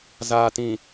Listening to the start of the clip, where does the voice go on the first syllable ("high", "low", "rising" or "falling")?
low